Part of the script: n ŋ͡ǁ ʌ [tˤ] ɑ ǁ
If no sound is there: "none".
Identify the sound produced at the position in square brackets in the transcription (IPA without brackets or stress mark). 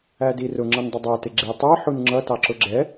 t